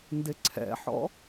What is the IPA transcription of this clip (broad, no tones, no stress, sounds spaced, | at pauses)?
n d ɪ ǀʰ ɛ̰ ħ ɔ̰